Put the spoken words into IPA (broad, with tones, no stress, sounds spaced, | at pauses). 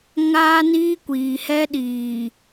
ŋ aː˦ n iː˦ kʷ iː˨ h ɛ˦ ɗ iː˨